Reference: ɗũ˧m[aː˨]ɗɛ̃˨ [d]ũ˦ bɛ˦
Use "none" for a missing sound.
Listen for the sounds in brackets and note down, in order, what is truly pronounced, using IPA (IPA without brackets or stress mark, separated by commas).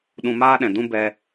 aː˦, d